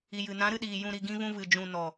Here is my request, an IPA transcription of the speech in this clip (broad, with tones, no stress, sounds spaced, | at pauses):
i˨ j ɨ˨ n ã˨˦ ɾ ɨ˧ ɗ iː˨ j ũ˨ ɾ i˨ ɡ ĩ˧ v ũ˧ v ɨ˨ d͡ʒ ũ˨ n ɔ˨